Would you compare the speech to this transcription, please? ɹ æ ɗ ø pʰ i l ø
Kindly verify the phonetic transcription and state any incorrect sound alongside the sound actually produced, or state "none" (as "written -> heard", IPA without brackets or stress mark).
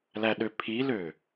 ɹ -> l